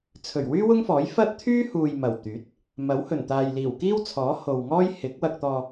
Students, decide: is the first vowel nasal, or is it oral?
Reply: oral